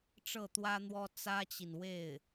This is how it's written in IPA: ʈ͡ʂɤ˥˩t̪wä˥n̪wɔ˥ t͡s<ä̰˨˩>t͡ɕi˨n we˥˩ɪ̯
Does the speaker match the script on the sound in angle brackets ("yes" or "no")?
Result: no